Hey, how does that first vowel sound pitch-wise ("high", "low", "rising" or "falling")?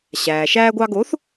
low